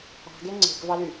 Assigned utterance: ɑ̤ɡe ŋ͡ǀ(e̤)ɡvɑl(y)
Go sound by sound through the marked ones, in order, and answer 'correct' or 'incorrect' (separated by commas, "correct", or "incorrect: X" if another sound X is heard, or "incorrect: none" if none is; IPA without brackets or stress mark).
correct, correct